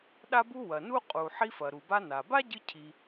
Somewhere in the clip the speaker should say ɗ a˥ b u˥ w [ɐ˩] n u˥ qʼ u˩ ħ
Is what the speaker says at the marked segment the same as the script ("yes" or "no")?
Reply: yes